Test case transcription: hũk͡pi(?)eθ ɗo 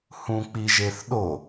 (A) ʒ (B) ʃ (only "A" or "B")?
A